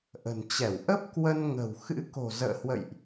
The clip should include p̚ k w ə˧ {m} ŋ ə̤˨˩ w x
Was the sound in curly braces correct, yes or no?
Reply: no